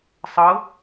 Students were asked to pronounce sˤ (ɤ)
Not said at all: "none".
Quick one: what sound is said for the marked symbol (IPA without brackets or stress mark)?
ɤ